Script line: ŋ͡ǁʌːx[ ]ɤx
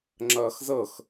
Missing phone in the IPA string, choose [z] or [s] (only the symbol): z